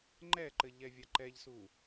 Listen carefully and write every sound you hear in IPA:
ŋ͡ǃ ɛ ǃ ɘ ʎ ɛ vʲ a ǃ ɛ ʎ s u

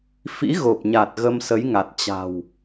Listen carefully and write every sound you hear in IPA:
f ḭ˧˥ ɣ o˨˩ p̚ ɲ a˨˩ t̚ ɣ ə˧ m s ə˨˦ j ŋ a˨˩ t̚ t͡ɕ a̤˨˩ w

